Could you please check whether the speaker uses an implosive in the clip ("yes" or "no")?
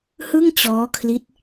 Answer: no